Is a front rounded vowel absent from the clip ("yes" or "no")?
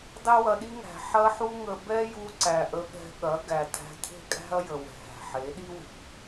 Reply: yes